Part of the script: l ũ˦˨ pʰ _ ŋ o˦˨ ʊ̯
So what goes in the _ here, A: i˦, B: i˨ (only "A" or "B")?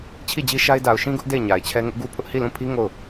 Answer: A